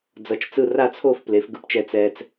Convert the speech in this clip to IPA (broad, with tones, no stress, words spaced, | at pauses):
d͡zʌ˧˥t͡ʃt͡sɯ˥˧ ra˥˧t͡sʰo˥˧fple˩˥f ɡɯ˧pt͡ʃɛ˧ t͡sɛ˧t͡s